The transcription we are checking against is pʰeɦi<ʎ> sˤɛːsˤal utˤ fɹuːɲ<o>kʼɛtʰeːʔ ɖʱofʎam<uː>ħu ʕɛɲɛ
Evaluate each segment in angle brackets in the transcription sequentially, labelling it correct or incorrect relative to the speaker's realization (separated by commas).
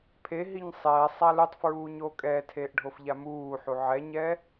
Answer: incorrect, correct, correct